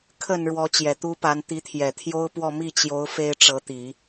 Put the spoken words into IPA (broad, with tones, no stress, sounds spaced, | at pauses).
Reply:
kʰ ə˨˩ n ɻ w ɔ˧˥ t͡ɕ j ɛ˨˩ t̪ u˥ p a˧˥ n t̪ i˧˥ t̪ʰ j ɛ˨˩ t̪ʰ j o˥ ʊ̯ p w ɔ˥˧ m i˥˩ t͡ɕ j o˧˥ ʊ̯ f e˥ ɪ̯ ʈ͡ʂ ɤ˧˥ t̪ i˨˩˦